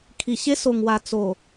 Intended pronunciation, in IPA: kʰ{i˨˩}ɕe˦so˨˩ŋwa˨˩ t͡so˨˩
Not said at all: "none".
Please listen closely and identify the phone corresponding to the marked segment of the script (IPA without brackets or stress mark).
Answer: i˨˩